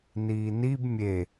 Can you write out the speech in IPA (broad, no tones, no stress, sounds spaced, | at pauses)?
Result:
n iː n i b mʲ e